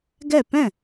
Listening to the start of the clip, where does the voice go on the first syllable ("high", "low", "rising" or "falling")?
falling